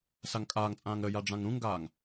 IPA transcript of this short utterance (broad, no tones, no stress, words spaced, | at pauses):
saŋkʼaːŋt͡sʼãːŋ ɾəja ɖ͡ʐãŋɾũŋɡaːŋ